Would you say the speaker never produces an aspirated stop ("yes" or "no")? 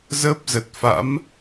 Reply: yes